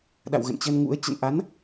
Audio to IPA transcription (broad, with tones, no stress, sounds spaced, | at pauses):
ɗ a̰˧˨ w ɣ ə̰˧˨ n t͡ɕ ə˧ n ŋ ṵ˧˥ ə̯ t͡ɕ ə̰˧˨ n ʔ a˨˦ n